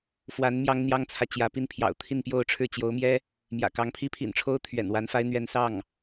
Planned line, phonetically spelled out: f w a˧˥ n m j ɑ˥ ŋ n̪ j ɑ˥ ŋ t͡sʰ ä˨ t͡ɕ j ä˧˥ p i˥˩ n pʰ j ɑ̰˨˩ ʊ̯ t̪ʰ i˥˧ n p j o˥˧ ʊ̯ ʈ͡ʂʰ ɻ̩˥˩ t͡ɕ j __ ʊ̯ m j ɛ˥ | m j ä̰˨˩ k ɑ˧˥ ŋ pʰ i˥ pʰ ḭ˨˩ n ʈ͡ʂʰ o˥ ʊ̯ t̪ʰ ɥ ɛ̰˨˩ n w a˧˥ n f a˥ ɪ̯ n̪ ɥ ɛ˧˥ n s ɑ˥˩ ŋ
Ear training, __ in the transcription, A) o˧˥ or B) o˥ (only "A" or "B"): A